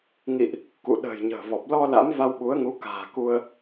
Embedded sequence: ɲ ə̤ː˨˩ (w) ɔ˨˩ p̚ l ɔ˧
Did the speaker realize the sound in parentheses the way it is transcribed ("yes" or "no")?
no